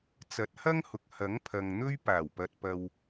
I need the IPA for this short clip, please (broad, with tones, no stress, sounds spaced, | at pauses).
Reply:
t͡s ɐ˨˥ t̚ h ɐ˥ ŋ h ʊ˨ k̚ h ɐ˨˥ ŋ pʰ ɐ˨ ŋ n̪ ɵ˥ ɥ p aː˨˩ w p ɐ˨ t̚ p ɐ˨ w